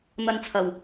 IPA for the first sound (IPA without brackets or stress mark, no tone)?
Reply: n̪